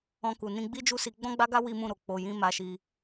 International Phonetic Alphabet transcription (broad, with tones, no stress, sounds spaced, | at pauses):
ɔ̃˧ k u˨ n ĩ˧ ɡ͡b i˦ d͡ʒ u˦˨ s i˧ ɡ͡b ɔ̃˦ ɡ͡b a˦ ɡ a˦ w i˦ m ũ˦˨ ɾ o˨ k͡p o˧ j ĩ˦ m a˧ ʃ i˧